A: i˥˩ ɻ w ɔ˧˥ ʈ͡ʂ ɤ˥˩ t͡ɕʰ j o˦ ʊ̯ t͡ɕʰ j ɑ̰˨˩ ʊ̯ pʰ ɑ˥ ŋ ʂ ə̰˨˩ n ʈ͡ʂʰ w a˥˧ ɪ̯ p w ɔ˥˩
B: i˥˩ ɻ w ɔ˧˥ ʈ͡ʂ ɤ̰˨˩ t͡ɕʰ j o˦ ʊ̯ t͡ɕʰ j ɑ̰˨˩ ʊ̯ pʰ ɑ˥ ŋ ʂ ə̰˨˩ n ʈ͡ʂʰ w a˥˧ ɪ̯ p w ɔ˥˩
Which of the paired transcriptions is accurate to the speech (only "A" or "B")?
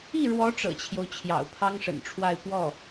B